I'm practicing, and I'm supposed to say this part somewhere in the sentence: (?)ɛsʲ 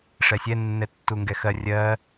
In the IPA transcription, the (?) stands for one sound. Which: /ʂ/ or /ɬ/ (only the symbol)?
ʂ